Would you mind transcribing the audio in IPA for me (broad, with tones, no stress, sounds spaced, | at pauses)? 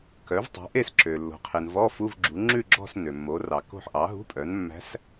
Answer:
k œ˩˥ v tˤ o̤˩˥ ʔ e˦˨ s ǁ ø˩ lː o̤˩ qʰ e˩ n v ɔ˧˥˧ f u˧˥˧ v ɡ͡ǁ u˩˥ ŋ͡ǁ ʉ˦˨ ɡ͡ǁ ɔ̤˦˨ s n ø˩ mː o˩˥ r ɑ˩ k o̤˦˨ ħ ʔ ɑ˩˥ ɦ ṳ˧˥˧ pʼ œ˩˥ n mː æ̤˧˥ s